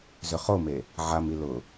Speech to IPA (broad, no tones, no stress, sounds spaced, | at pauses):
z ʏ χ o m e | ʕ a m i l ʊ